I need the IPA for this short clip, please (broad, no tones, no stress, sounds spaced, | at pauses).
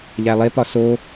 ʎ æ lˠ e p ɒ s o